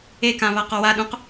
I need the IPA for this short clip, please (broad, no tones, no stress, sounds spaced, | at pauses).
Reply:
e k ã β a q ɔ w a ɗ ũ q